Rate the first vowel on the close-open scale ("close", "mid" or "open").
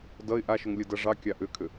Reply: mid